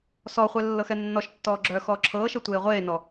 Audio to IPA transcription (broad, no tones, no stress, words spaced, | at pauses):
sɔχʷɛ lːɤxɛnːɔʃtːɔː ɡ͡ǁœːxɔːǁʰɤːʃɤ tʷeːʁʷeːnɔ